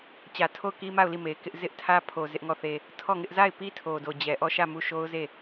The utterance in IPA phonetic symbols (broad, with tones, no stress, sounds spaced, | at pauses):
t͡ɕ ä˨ tʰ o˦˨ ʊ̯ k i˦ m a˦˨ ʊ̯ l i˦˨ m e˨ ɪ̯ k ɪ˦ ʔ z ɪ˦ ʔ tʰ ä˦ pʰ o˨ z ɪ˦ ʔ ŋ ɔ˦˨ θ e˦ | tʰ ɔ˦˨ ŋ ɪ˦ ʔ z a˦˨ ɪ̯ p i˦ tʰ o˨ d o˨ d͡ʑ ɛ˨ ʔ ɔ˦˨ ʃ ä˦˨ m u˦˨ ʃ o˦ ʊ̯ z e˦˨